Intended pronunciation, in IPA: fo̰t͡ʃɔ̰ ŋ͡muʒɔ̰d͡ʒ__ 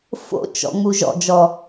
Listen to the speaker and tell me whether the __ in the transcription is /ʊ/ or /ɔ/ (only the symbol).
ɔ